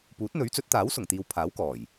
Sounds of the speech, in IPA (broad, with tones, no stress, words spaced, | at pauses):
puː˨˥t̚n̪ɵ˨˥ɥt͡sɵ˨˥t̚t̪aː˨˥w sʊ˨˩ŋt̪iː˨w pʰaː˨˥wkɔː˨˩j